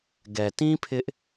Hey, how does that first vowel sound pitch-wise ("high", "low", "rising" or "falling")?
low